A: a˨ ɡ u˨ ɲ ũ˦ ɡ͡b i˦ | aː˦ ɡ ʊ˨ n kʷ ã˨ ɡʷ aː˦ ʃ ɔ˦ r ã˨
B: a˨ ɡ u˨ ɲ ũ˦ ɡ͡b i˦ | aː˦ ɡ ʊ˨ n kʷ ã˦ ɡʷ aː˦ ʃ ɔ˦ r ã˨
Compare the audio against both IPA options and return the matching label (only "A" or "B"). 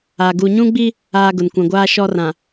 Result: A